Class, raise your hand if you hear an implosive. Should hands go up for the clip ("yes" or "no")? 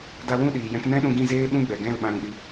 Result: yes